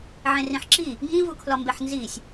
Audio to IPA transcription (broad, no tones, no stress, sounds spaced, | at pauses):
ʕ ẽ r ĩ ħ ǁ i | ŋ ĩ v u kʰ l ɒ m b e ħ n z i sʲ